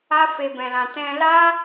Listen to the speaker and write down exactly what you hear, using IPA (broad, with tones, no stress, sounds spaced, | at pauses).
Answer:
a˦ f e˧ b ɛ̃˧ l ã˧ t ɛ̃˧ l a˦